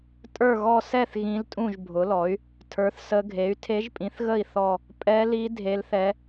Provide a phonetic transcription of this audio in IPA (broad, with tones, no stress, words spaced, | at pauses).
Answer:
tʼə˞˥˨ɣɔ˥˨ sɛ˥˨θ ɣĩ˧˥ltʼũ˥˨ʒbʱʊ˩˥lɔ˩˥y̯ | tʰə˞˩˥θsə˧˥ɡʱe˩˥y̯ tʰe˧˥ʒpʼĩ˩˥θɣə˥˨i̯ θɔ˥˨ | pʼɛ˧˥li˧˥ dʱe˧˥lθɛ˧˥